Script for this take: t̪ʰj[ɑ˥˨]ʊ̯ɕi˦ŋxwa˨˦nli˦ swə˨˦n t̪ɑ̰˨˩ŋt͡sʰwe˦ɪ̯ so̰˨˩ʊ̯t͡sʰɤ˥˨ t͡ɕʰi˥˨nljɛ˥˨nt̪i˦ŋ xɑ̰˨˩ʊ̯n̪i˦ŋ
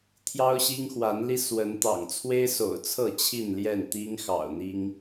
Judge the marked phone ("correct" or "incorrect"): incorrect